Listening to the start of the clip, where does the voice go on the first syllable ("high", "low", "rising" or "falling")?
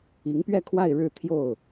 rising